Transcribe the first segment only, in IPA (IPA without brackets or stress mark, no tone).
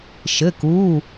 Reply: ʃ